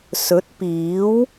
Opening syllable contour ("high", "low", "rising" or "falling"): rising